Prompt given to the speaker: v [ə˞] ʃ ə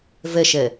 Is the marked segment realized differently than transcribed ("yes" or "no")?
yes